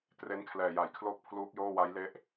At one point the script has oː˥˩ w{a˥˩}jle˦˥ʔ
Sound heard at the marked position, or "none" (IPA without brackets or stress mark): a˦˥